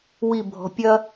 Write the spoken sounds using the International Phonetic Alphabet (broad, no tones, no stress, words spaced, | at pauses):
wibʱɔ̤ pʲɐ